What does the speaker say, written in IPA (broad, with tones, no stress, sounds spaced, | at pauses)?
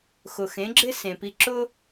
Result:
x ʊ˩ x ẽ˩˥ ɡ͡ǁ ɪ˥ s ẽ˩ p i˧ ǁ ʊ˥